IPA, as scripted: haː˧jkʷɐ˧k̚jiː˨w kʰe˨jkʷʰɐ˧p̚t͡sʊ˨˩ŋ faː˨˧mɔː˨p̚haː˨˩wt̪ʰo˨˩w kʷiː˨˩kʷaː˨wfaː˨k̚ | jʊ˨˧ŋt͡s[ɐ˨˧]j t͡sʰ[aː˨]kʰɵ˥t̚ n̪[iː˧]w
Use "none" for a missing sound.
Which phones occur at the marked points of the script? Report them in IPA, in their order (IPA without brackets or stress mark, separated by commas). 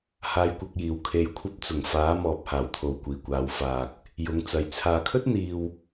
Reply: ɐ˨, aː˨, iː˧